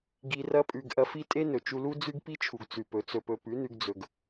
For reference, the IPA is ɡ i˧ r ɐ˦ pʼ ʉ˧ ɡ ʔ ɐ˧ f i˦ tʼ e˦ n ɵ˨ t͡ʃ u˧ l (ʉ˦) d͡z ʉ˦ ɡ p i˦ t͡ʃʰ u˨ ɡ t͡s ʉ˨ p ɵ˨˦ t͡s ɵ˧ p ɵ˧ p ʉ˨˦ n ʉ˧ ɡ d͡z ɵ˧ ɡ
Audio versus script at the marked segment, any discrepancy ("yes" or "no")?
yes